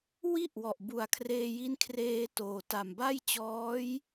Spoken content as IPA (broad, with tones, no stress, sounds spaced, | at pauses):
w i˥˩ ʔ w ɔ˨˩ ʔ b u˨˩ a̯ kʰ r eː˧ j i˦˥ n kʰ r eː˧ t oː˨˩ t a˨˩ m b a˥˩ j t͡ɕ ɔː˦˥ j